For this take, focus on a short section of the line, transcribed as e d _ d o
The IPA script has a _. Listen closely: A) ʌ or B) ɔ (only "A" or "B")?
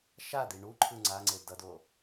A